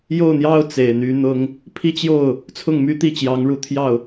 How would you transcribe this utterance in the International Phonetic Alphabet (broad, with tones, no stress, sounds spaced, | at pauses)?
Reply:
j o˥˩ ʊ̯ n̪ j ɑ˥ ʊ̯ t͡s e˨˩ ɪ̯ n̪ y˧˥ n̪ ʊ˥ ŋ | pʰ i˥˧ t͡ɕ j o˥˩ ʊ̯ | t͡sʰ ʊ˥˩ ŋ m y˥ t̪ i˥˩ t͡ɕ j ɑ˧˥ ŋ ɻ u˧˥ t̪ʰ j ɑ˥˩ ʊ̯